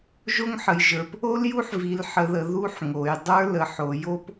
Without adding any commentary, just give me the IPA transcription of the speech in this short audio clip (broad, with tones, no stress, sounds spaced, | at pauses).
ʒ o˦˥ ŋ ħ ə˩˧ j ʒ ə˞˩˧ p | o˦˥ l j u˦˥ ħ v i˩˧ l ħ ə˩˧ ð ə˩˧ ð u˦˥ ħ ŋ o˩˧ j dˤ ə˞˦˥ l ə˩˧ ħ o˩˧ j o˦˥ p